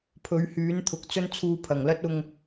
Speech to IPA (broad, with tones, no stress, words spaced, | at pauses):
pʰɵ˨˥ɥhyː˨˥nt̪ʰʊ˨k̚t͡sɵ˥n t͡sʰuː˧pʰɐ˨˩ŋlɐ˥t̚ ʊ˧ŋ